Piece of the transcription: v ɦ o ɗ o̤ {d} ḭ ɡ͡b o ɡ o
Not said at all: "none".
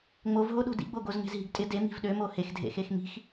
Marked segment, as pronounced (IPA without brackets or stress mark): d